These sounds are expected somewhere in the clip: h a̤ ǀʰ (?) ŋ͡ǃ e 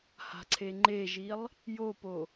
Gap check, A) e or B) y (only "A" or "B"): A